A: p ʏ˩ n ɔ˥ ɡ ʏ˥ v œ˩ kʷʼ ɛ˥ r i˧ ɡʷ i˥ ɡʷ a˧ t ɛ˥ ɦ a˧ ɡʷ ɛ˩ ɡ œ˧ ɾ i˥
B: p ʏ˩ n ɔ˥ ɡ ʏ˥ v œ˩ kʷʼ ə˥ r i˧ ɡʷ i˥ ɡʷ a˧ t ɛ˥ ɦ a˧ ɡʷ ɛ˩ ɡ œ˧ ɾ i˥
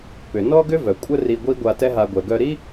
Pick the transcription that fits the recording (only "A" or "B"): B